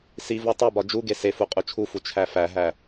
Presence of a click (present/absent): absent